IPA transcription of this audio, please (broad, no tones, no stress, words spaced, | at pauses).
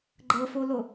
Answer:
ɡ͡ǃɤfolo